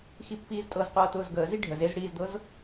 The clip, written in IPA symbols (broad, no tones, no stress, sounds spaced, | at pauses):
x i pː iː z tʼ ɤ z qʷ ɤː t ʊː z ɡ əː z i ɖʱ ə z e z ɽ iː z d̪ ɤ z